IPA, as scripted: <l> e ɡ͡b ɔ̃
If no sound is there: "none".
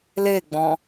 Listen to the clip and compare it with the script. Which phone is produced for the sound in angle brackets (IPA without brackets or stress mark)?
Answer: l